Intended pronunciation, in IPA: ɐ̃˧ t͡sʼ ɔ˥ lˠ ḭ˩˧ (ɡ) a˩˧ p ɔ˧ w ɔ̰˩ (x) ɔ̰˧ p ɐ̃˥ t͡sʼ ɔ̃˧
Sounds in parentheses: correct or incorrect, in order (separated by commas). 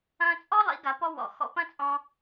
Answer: correct, correct